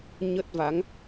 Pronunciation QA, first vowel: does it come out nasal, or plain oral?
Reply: oral